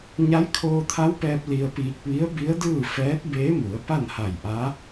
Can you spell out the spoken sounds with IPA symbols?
ɲ a˧˥ j kʰ oː˧ t̪ʰ a˧˥ w p ɛː˧ p̚ l i˧ ə̯ p iː˧ k̚ ʋ i˧˥ ə̯ b i˧˥ ə̯ d ɯː˥˨ f ɛː˧˥ t̚ b eː˧˥ m u˩˧ ə̯ p a˥˨ n h a˧˩ j ʔ a˧˥

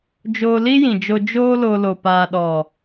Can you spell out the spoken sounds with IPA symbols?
d͡ʒ oː˧ l i˦ j ĩ˨ d͡ʒ o˧ d͡ʒ oː˦ l o˧ l o˨ p aː˨ ɗ ɔ˨

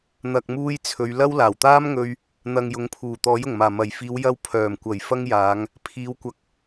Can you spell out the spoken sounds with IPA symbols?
n̪ ɐ˨ k̚ m uː˧ j t͡sʰ ɵ˨˧ ɥ l ɐ˥ w l aː˨˩ w t̪ aː˥ m ŋ ɵ˧ ɥ | n̪ ɐ˨ ŋ j ʊ˨˥ ŋ pʰ uː˨˩ t̪ ɔː˨˥ j ʊ˨˩ ŋ m aː˨˩ m ɐ˨˩ j f iː˨˧ w j ɐ˧ w pʰ œː˨˩ m kʷ ɐ˨˩ j f ɐ˥ ŋ j aː˨˧ ŋ | pʰ iː˨˧ w kʷ ɐ˨ k̚

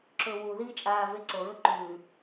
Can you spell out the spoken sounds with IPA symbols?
ǁ ɵ w u ð iː t͡ʃʼ aː v e ǀ o ɹ ɵ ǃ ʉː

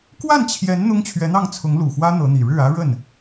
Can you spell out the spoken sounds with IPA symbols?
k w a˥˩ n t͡ɕʰ j ɛ˧˥ n n̪ ʊ˥ ŋ t͡ɕʰ ɥ ɛ˧˥ n̪ ɑ˥˩ ŋ t͡sʰ ʊ˧˥ ŋ l u˨˩ x w ä˥ n̪ ɤ˧˥ n̪ i˨˩ ɻ ɻ̩˥˩ ä˥ ɻ ə˥˩ n

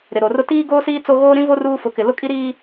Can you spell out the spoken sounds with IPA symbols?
ɾ ɪ˨ ɾ o˨ r ʊ˦ t iː˦ ɡ oː˦ s iː˦ t͡s o˦ ɣ oː˦ ɾ ĩ˦ v o˦ r uː˦ f ʊ˨˦ k ɪ˨ l ʊ˦ kʼ i˦ ɾ iː˦

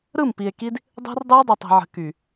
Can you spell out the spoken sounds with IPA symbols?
ɾ ɯ˦˨ m p i˨ e̯ k i˦ d | dˤ ɛ̤˦ r dˤ ɯ˦ o̯ dˤ i˨ tˤ i̤˨ ʕ ə̤˨ k y˨

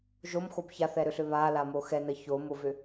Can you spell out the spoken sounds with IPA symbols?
ʒ o m x o b ç a θ ɛ ɾ ʏ ɬ ʏ β a l a m o x ɛ n ə ç o m o v ʏ

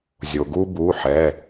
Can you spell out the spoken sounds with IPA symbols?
zʲ o˩ ɡ u˦ b u˩˧˩ ħ ɛ˩˧˩

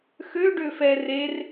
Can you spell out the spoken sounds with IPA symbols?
x ø ɖ ø f ɛ r e r

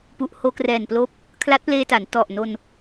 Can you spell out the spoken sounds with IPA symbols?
p u˨˩ ʔ h oː˧ k r ɛː˨˩ n p l oː˦˥ p̚ | kʰ l a˦˥ t̚ p l eː˧ t a˩˦ n t ɔ˨˩ ʔ n o˧ n

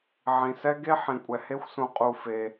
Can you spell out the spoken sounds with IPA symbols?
ʕ ĩ˨ s ɛ˦ ɡ e˦ ħ ĩ˨ kʷʼ ɛ˨ h e˦ xʷ s ũ˨ qʼ u˧ f e˧

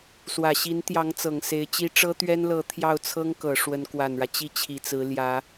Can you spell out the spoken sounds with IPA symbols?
s w ä˨˩ ɕ i˧˥ n t̪ j ɑ˧˥ ŋ t͡s ɤ˨˩ ŋ s e˧˥ ɪ̯ t͡ɕ i˥ ʈ͡ʂ ɤ˥ t̪ ɥ ɛ˥ n l ɤ˧˥ t̪ʰ j ɑ˥˩ ʊ̯ t͡sʰ ɤ˥ ŋ k ɤ˨˩ ʂ w ə˧˥ n k w a˨˩ n ɻ ä˦ t͡ɕ i˥˩ t͡ɕʰ i˨˩ t͡s ɹ̩˧˥ l j ä˧˥

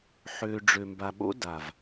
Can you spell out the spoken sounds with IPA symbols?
ħ ø˨ ɖ͡ʐ ø˨ m b a˨ ɓ o̰˦ d a˨ v

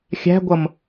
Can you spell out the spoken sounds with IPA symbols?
xʲ æ̤ ɡʷ ʌ m

